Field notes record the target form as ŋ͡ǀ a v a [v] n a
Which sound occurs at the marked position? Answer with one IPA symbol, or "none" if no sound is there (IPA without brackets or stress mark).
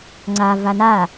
none